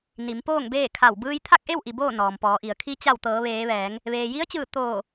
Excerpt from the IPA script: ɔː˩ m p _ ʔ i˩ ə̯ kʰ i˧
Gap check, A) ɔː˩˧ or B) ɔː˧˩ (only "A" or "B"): A